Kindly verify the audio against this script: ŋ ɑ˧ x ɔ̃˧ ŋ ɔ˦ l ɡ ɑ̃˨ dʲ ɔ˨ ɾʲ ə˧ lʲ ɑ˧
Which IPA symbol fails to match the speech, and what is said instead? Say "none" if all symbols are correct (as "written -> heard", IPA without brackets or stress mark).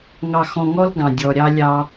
ə˧ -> ɑ˧